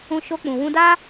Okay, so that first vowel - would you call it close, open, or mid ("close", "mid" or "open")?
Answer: close